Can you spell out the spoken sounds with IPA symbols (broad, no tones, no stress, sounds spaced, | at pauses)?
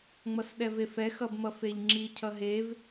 ŋ͡m ʌ s ɗ ɛ v e f ɛ x ʌ b m ʌ f e ʎ ŋ͡ǁ i cʰ ʌ ɦ e v